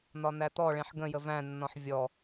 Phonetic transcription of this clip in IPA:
n̪ɒn̪æt̪ɔɭẽħ ɡə̃jə væ̃nːɔ̃ħ vʲɔ

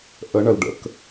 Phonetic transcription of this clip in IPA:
ʔə ɳəlɖə̰k

